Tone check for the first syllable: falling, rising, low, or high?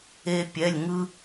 high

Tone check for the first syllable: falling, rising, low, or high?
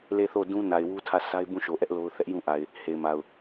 falling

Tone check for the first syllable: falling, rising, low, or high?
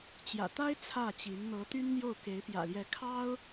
low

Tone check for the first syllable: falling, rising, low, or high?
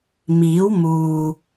rising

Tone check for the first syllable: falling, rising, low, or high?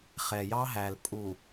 low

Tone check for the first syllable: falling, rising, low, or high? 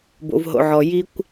low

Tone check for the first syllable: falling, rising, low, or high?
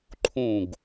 falling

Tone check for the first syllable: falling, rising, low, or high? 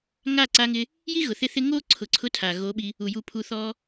falling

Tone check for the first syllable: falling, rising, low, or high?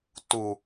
low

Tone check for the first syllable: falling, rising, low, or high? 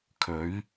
rising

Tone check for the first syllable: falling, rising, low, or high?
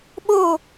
falling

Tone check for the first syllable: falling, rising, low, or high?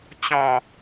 falling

